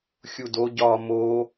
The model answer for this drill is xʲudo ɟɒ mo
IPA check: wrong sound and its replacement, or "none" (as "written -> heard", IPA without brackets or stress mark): none